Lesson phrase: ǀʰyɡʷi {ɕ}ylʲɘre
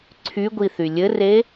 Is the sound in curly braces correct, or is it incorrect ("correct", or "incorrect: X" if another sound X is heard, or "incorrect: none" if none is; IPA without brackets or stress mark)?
incorrect: θ